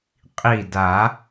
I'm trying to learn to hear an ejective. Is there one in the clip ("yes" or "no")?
yes